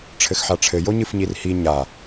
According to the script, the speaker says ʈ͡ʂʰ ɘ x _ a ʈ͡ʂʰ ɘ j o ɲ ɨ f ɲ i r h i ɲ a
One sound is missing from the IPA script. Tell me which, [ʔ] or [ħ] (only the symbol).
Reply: ħ